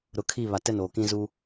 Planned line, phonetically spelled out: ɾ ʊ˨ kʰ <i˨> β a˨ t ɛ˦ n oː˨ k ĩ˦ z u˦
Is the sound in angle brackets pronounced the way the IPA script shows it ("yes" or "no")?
no